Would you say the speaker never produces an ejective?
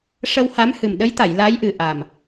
yes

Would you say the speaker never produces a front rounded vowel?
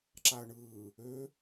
no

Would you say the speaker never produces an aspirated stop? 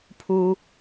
no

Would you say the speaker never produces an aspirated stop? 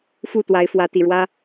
yes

